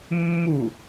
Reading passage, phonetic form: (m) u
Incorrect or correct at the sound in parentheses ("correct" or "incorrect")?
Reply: incorrect